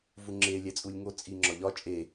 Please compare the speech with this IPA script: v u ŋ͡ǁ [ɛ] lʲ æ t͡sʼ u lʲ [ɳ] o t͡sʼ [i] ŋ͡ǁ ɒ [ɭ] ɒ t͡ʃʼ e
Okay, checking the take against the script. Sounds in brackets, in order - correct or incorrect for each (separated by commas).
incorrect, incorrect, correct, incorrect